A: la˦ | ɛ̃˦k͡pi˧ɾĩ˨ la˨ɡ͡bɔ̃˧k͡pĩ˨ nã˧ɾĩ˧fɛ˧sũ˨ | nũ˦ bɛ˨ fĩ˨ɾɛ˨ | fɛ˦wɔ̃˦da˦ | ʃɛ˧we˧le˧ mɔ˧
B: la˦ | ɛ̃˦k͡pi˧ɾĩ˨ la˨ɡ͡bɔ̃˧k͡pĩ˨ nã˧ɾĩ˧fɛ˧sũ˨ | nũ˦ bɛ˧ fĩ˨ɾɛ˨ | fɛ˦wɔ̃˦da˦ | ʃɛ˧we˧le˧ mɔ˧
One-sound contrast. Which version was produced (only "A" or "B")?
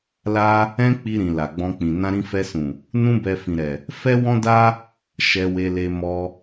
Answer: B